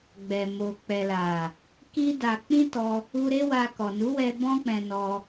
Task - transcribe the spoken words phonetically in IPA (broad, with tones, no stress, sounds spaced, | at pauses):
ɡ͡b ɛ˨ m o˨ k͡p ɛ˨ l a˨ | k i˦ d a˧ k͡p ĩ˦ t ɔ˧ | u˧ ɾ e˦ w a˧ k ɔ˨ n u˨˦ w ɛ˧ b ɔ̃˦ k͡p ɛ̃˧ n ɔ˧